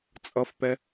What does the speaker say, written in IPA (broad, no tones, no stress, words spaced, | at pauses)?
t͡sʼʌfpɛ